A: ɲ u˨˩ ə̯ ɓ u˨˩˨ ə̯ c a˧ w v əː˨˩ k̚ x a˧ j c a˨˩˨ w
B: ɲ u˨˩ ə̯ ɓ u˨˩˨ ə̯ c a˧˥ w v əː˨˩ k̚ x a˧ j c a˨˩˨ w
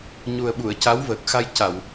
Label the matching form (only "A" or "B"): B